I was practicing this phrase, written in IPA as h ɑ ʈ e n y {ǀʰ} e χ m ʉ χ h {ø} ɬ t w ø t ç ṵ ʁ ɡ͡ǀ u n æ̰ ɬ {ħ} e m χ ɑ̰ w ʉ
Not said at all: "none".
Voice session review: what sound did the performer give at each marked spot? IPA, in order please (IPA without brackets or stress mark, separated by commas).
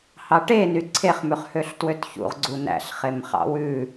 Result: ǀʰ, ø, χ